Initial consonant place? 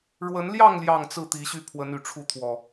retroflex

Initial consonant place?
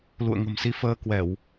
alveolar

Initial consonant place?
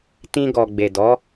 alveolar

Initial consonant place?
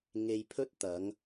velar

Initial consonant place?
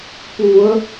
labial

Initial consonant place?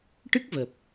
retroflex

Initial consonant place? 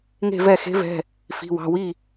velar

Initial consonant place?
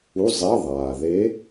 alveolar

